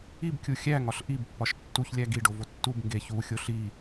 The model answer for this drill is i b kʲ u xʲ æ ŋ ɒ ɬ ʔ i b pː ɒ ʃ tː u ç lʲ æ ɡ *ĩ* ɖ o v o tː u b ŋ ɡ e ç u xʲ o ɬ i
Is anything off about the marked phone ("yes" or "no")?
yes